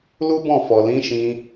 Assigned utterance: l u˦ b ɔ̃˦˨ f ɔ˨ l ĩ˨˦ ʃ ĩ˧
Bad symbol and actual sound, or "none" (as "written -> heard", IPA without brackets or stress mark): none